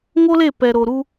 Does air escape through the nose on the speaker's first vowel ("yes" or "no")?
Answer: no